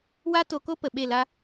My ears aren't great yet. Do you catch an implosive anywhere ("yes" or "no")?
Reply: yes